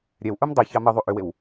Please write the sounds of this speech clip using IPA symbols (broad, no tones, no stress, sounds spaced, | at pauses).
ɾʲ ɛ w ʔ u m dˤ i ç ɑ m ə ðˤ u ʔ ʏ w e w